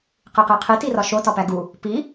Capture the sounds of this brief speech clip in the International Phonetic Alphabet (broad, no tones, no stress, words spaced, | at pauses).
qiqeqʰi tirɒʃo tɒpæɡu | pi